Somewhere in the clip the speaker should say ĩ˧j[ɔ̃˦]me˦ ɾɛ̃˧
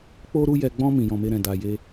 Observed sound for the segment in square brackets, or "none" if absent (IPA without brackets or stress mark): ɔ̃˧